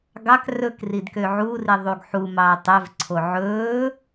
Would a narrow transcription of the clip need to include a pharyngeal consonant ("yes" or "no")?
yes